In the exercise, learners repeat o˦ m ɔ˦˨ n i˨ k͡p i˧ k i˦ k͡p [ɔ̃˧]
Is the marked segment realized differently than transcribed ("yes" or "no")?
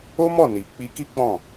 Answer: yes